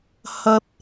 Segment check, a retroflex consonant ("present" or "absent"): absent